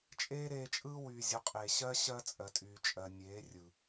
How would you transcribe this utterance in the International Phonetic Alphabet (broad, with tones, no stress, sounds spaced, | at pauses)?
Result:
t͡ʃʼ eː˦ ɾ eː˧ t͡ʃʼ ɯː˦ w yː˨ zʲ ɔ˨˦ qʼ eː˨ ɕ ɜ˦ ɕ ɜ˦ t͡sʼ ɜ˨ tʼ yː˨ t͡ʃʼ ɜ˨ nʲ eː˨˦ rʲ ɯ˨